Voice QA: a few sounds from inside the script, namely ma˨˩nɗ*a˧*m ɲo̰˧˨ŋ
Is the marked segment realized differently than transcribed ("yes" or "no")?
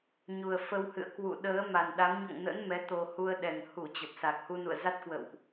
yes